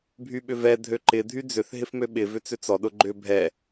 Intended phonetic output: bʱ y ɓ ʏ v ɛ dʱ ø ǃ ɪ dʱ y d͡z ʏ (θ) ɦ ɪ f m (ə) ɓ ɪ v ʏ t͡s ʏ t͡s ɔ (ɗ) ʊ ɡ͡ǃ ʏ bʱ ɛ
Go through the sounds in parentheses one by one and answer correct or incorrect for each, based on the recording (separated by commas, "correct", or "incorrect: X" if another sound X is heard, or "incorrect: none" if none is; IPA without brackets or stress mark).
correct, incorrect: ø, correct